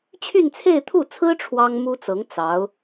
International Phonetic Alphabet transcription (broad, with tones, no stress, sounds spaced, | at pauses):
t͡ɕʰ y˥˧ n t͡sʰ e˥˧ ɪ̯ t̪ʰ u˥˩ t͡sʰ ɹ̩˥ ʈ͡ʂʰ w ɑ˥ ŋ m u˥ t͡s ɤ˧˥ ŋ t͡s ɑ˧˥ ʊ̯